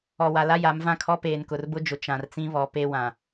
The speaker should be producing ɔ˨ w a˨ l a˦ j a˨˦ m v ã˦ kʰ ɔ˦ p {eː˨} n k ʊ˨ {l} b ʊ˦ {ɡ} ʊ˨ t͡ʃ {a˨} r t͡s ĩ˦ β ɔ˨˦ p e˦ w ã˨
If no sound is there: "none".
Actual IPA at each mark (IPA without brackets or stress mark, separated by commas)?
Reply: eː˨, r, d͡ʒ, ã˨